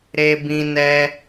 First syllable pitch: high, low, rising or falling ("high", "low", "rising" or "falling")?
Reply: high